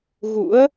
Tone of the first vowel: rising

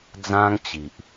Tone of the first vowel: high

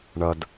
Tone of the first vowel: high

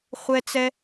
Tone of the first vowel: high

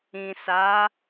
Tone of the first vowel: low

